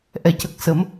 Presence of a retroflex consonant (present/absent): absent